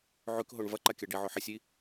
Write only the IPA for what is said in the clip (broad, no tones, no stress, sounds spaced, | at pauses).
ʕ ʉ k ɦ o ɳ v ɐ ǃ a kʲ a ɖ i ʕ ɵ ħ i sʲ i